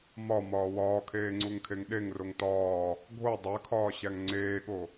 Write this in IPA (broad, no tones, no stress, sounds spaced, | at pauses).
m ɒ m ɒː w ɒː kʰ eː ŋ͡ǀ u ŋ kʰ e ŋ ɗ e ŋ r o ŋ t ɒː | ɡʱ o dˤ æ kʰ ɒː ɕ æ ŋ ŋ͡ǀ eː ɠ o